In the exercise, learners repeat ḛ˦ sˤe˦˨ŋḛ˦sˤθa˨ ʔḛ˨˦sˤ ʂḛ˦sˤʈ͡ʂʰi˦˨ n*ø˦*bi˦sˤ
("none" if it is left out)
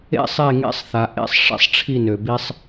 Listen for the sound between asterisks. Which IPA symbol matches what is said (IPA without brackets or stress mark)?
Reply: ø˨